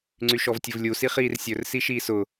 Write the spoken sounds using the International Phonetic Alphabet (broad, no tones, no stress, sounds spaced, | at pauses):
ŋ͡ǀ y ʃ ɔ v tʲ ʊ v lʲ u s i χ iː r sʲ ɵ r s i ʃ iː s ʊ